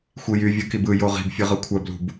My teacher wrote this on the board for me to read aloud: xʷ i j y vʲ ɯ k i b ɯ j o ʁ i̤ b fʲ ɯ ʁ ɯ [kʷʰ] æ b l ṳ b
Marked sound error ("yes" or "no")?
no